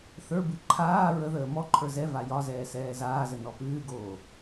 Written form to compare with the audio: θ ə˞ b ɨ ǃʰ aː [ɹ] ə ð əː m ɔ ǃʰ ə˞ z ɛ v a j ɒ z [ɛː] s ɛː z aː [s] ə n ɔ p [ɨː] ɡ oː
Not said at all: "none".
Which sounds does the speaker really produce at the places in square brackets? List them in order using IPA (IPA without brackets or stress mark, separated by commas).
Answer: ɹ, ɛː, z, ɨː